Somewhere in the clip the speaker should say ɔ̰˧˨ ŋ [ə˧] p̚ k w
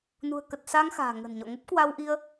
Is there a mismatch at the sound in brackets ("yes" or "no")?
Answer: yes